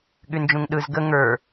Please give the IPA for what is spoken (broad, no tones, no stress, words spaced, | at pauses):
ɠynd͡ʒũŋɗɯz ɡə ŋə˞